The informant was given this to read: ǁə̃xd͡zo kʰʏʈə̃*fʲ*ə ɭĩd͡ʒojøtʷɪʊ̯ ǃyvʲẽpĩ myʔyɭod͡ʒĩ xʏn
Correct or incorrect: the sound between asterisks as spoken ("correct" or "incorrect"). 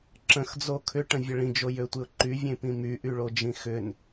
incorrect